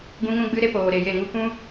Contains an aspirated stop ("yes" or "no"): no